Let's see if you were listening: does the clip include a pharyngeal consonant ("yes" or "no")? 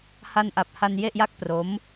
no